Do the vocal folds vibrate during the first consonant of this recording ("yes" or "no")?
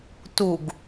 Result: no